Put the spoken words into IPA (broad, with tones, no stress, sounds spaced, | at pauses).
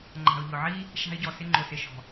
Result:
ŋ͡ǃ a̤˨ ʊ̯ ʎ ʊ˨ ʕ i˦ | ʃ a̤˧ ɪ̯ ɟ ɔ˨ s ɪ˧ ŋ͡ǃ ʊ˨ s ɪ˨ ʃ ɔ̤˨